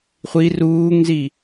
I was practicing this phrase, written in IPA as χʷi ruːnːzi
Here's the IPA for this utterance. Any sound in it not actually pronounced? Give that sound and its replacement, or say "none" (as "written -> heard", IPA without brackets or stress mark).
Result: nː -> ŋ